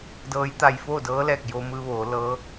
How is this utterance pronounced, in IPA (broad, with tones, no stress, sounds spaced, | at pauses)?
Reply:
d ɤː˧˥ j t̪ a˧ j f oː˥˨ d ɤː˧˥ l ɛː˧˩ k̚ j o˧ m ɯː˧ ʋ oː˩˧ l ɤː˧˥